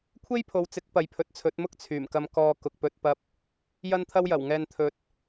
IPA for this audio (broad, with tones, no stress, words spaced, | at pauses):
kʷʰe˥jpʰo˨wt͡sɪ˨˥k̚ pɐ˨˥jpʰɵ˨t̚t͡sʰɵ˨˥t̚mʊ˥k̚ t͡sʰyː˨˩mkɐ˧m kɔː˧ kʊ˨k̚pɵ˧t̚pɐ˧p̚ | jɐ˥nt̪ʰɐ˥wjɐ˨˩wŋɛː˧n t̪ʰɵ˨t̚